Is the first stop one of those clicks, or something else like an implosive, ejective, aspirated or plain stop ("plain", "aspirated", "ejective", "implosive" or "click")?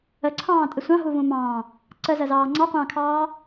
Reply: click